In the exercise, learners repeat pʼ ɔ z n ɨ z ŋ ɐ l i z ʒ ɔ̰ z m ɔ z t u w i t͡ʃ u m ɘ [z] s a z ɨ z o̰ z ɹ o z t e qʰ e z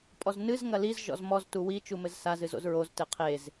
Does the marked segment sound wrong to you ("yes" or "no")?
no